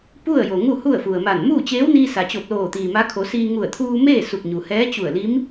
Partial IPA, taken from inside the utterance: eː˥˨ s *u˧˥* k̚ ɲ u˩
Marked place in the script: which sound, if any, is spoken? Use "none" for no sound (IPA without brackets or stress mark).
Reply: u˧˩